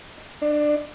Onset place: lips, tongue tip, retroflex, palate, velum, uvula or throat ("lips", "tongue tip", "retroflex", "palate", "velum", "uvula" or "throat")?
throat